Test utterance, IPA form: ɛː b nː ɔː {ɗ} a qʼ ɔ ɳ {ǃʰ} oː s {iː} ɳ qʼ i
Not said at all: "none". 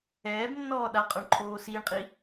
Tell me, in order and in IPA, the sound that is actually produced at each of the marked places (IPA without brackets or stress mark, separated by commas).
ɗ, ǃʰ, iː